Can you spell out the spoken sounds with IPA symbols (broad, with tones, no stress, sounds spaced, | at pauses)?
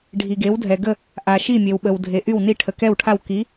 ɖʱ i˧ ɡ e˧˥ w dʱ ɛ˧ ɡ ə˥˧ | ʔ a˧ ʃ i˥˧ mʲ e˧ w ɓ ə˧ w dʱ e˧ ʔ y˥˧ w n i˥˧ ʈʰ ə˧ k ɛ˥˧ w ʈʰ a˥˧ w k i˧˥